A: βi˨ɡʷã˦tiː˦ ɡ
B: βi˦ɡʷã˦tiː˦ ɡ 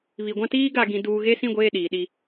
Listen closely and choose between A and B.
A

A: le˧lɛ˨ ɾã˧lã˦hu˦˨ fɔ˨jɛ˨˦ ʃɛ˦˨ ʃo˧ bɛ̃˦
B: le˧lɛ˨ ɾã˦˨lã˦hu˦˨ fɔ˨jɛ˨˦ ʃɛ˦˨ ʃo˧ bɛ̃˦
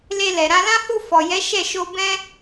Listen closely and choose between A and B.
A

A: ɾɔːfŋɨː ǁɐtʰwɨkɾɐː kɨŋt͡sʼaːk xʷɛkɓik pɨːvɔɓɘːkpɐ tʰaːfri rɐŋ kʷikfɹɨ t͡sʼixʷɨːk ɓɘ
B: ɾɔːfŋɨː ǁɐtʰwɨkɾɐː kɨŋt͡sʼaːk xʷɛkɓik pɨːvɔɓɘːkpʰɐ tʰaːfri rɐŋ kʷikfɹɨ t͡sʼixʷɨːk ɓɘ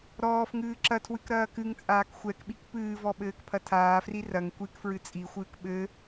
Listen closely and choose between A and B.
B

